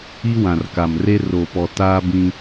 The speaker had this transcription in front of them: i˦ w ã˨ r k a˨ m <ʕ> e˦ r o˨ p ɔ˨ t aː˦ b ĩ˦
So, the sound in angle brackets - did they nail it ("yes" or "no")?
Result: no